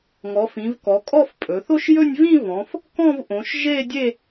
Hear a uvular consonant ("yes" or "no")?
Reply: no